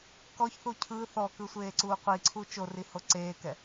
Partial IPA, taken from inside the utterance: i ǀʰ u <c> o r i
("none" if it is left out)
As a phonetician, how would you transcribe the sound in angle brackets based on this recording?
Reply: t͡ʃ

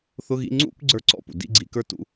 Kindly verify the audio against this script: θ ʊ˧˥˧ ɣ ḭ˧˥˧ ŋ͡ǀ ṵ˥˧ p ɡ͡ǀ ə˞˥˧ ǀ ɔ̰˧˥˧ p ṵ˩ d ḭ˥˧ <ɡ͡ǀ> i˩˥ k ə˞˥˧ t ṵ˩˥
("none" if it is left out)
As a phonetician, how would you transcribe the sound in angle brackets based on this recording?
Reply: ɡ͡ǀ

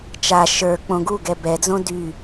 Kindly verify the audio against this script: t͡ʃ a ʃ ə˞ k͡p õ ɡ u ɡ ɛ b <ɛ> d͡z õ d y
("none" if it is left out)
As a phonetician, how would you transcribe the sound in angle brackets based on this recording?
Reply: ɛ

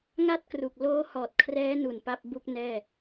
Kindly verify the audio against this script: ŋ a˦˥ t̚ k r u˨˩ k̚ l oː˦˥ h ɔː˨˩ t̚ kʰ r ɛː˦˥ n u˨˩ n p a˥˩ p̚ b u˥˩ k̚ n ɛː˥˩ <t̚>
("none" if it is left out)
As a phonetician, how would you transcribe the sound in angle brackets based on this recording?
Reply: none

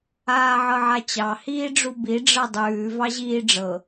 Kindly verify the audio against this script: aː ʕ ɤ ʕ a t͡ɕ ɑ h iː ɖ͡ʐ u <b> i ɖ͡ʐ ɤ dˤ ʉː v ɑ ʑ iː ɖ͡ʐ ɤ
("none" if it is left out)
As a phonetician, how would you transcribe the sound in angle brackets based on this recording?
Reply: b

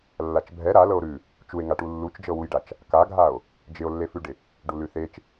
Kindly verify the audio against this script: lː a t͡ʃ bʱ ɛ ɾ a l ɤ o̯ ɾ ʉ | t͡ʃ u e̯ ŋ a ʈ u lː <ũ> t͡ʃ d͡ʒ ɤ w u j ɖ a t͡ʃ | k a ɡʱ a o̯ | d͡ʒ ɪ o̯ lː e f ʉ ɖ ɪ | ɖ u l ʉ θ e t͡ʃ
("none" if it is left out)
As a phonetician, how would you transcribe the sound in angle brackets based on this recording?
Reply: u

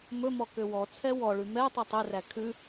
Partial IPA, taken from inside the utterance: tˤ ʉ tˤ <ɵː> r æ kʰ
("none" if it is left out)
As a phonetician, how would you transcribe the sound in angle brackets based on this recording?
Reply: ɵ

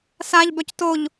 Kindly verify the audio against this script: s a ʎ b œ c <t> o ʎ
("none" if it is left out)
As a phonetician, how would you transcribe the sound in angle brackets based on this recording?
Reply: t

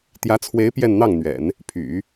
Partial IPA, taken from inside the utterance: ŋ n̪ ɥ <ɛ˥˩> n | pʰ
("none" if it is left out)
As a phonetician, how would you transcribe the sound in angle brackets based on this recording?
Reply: ɛ̰˨˩˦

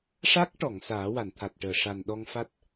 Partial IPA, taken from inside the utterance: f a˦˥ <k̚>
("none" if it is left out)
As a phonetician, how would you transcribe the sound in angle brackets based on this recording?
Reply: t̚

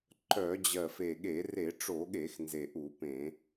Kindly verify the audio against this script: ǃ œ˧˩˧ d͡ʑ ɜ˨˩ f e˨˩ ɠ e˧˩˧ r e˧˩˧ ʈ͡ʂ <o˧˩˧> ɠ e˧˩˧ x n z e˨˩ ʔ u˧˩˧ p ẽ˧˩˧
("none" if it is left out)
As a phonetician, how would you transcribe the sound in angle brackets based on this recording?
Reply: o˧˩˧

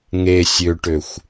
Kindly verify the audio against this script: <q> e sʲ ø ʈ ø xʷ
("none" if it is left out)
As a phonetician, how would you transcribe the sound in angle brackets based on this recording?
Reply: ŋ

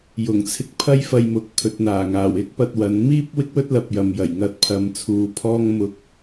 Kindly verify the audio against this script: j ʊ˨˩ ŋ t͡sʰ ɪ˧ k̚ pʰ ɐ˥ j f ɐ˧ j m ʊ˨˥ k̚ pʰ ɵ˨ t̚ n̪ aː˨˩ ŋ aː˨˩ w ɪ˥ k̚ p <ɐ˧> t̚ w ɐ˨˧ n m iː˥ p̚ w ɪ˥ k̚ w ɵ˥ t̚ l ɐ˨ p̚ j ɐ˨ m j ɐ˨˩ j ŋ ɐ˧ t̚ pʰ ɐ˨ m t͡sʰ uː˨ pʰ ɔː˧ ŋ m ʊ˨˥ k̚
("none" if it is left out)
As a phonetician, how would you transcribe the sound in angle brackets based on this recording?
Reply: ɐ˧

